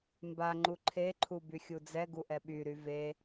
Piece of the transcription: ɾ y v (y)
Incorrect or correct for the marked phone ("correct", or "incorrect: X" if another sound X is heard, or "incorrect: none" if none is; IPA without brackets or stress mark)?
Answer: incorrect: e